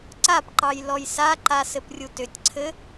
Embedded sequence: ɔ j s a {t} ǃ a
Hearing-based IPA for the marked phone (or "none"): none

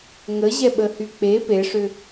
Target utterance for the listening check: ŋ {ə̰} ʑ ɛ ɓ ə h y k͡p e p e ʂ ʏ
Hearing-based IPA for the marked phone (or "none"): ə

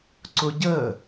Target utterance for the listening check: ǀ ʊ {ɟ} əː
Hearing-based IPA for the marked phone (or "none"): ɟ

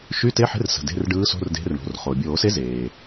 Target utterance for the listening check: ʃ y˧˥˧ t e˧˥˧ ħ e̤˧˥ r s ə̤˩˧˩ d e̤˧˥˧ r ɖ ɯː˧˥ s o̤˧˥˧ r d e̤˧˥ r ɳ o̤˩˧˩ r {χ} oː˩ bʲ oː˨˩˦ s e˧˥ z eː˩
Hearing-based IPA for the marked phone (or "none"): χ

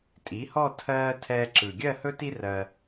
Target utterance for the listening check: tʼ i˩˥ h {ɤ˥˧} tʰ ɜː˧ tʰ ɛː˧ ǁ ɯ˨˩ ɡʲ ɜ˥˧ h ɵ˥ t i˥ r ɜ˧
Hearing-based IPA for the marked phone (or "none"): ɔ˥˧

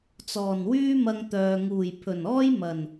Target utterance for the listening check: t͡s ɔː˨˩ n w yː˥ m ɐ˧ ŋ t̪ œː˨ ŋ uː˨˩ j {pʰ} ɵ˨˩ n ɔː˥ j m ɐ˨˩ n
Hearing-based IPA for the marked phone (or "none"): pʰ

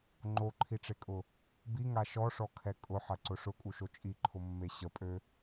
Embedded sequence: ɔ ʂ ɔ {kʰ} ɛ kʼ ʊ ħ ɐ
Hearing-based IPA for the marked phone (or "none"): kʰ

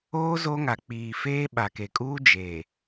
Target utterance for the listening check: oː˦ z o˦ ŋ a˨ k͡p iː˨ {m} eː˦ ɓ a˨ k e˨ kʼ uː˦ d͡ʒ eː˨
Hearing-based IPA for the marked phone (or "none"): f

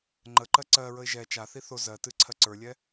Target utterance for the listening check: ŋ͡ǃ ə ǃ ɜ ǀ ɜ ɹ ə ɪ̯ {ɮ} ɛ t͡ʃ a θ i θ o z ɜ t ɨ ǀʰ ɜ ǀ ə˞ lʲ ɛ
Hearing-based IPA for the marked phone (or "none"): ʒ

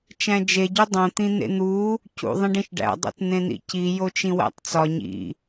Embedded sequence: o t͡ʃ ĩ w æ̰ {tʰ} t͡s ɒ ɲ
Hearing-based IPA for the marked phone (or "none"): tˤ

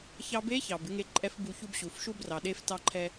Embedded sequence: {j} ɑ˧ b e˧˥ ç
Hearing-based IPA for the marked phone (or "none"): ç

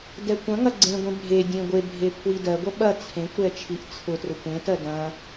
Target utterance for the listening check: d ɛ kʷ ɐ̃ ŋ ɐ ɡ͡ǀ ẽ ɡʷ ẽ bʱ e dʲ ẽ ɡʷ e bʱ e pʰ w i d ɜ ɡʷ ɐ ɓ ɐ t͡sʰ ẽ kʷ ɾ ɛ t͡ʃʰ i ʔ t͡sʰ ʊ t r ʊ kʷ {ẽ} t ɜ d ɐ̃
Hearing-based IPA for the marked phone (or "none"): ẽ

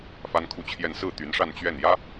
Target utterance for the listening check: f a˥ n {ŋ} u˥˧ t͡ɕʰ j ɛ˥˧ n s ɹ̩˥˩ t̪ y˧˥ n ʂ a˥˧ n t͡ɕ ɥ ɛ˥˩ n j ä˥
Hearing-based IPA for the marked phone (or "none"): kʰ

